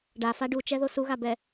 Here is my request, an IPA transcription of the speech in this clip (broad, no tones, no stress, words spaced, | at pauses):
ɖafa ɖut͡ʃɛðo suɣabɛ